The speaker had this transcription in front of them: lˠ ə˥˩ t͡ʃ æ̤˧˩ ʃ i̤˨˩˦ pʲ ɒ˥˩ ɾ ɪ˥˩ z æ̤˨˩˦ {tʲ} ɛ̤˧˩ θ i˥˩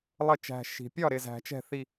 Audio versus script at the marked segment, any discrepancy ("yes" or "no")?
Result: yes